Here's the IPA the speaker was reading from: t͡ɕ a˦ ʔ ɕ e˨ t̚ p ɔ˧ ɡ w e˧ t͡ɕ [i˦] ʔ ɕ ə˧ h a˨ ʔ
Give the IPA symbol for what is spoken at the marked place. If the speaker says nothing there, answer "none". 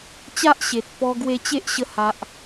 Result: e˦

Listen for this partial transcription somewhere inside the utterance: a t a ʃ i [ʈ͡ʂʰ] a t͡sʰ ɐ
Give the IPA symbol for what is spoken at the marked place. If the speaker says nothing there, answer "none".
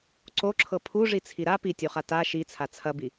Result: t͡sʰ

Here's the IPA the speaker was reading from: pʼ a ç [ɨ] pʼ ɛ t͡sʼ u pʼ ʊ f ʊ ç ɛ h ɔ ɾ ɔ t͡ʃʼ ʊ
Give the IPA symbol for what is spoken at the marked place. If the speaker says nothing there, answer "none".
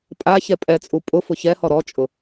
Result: ɛ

